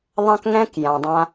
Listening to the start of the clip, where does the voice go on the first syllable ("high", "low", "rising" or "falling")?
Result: high